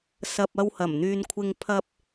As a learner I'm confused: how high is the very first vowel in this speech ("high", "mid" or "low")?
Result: low